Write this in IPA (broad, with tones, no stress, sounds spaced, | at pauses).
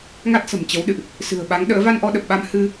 ŋ a˦˥ t̚ s ə̤˨˩ m t͡ɕ ə˨˦ w ɗ ɨ̰˧˨ ʔ | s ɨ̤˨˩ ə̯ ɓ a˨˦ ŋ ɗ ə̰ː˧˥ v a˧ n ʔ ɔ˧ ɗ ə˨˩ p̚ ɓ a˧ m h ɨ˧